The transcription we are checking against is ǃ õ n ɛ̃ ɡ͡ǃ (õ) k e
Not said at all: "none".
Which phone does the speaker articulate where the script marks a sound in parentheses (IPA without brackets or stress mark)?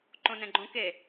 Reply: õ